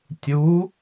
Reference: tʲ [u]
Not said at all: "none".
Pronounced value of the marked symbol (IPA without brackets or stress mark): u